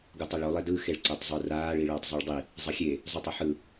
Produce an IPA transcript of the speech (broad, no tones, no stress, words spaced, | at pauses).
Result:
ɡutˤiɭo lˠedɯ xeɭǀotˤzˤuraːɭ iɭʌːtˤzˤɯɭdˤi | zˤʌxʲe | zˤotˤʌħɯ